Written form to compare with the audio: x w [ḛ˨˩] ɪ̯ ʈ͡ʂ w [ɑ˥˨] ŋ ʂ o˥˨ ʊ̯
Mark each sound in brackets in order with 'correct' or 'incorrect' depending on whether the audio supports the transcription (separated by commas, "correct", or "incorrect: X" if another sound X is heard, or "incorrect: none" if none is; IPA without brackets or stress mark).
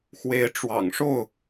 incorrect: e˨˦, incorrect: ɑ̰˨˩